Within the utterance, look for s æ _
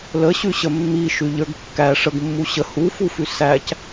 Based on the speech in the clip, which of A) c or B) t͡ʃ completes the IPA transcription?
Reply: A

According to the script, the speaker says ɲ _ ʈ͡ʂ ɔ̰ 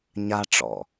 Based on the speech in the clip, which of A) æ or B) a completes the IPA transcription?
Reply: B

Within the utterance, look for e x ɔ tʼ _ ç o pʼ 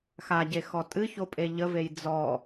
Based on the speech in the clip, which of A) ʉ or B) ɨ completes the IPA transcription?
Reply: B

